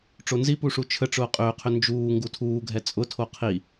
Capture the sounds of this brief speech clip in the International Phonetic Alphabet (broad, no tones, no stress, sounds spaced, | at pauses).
ʈ͡ʂ o n z i p u ʂ u t͡ʃʰ ə ʈ͡ʂ ʊː qʼ ʏː qʰ ʏ n d͡ʒ uː ŋ ɡ u tʰ uː ɡʱ ɛ t͡sʼ ʊ tʰ o qʰ i